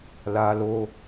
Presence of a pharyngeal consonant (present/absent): absent